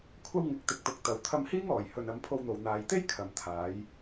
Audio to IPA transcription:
kʷʰ ɐ˧ w ŋ ɪ˨˥ k̚ t̪ ɪ˨ k̚ t̪ ʊ˨˥ k̚ t̪ ɐ˨ w t̪ʰ ɐ˧ m h iː˥ ŋ ɔː˨˩ j h ɵ˨ n ɐ˨˧ m pʰ o˧ w n̪ o˨ w n̪ aː˨ j t̪ e˥ j kʰ ɐ˨ m t̪ʰ aː˨˧ j

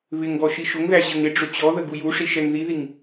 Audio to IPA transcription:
β ɪ ŋ ɡ ɔ ʃ i ʃ ʊ ŋ ð æ ʑ ə ŋ ɪ ɖ͡ʐ ʊ t͡ɕ ɔ ð ə ɡ u j u ʂ i ʃ ɛ ŋ ð i ð i ŋ

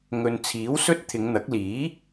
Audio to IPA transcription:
ŋ ɵ˨ n t͡sʰ iː˨˥ w s ɵ˥ t̚ t̪ʰ ɪ˨˧ ŋ n̪ ɐ˨˥ k̚ l iː˨˥

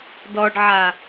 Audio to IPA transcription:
d ɔ ɖ ʕ a

